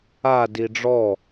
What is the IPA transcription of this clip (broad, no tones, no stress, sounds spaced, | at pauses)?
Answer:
a d i ɖ͡ʐ ɔ